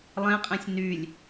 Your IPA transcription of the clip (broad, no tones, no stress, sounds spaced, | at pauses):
lˠ ẽ qʼ ɛ̃ sʲ n y lʲ